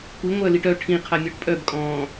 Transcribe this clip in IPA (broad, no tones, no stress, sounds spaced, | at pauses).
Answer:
kʷ i ŋʷ œ l i ʈ œ ʈʰ ĩ qʰ a mʲ ɔ ʈ pʼ œ b kʼ ɔ̃ː